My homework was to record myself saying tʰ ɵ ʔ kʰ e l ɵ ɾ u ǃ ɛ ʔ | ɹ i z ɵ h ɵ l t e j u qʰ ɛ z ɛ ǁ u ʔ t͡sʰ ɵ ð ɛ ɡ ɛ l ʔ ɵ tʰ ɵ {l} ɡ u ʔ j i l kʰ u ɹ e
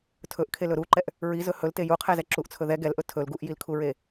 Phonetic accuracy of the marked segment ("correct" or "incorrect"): correct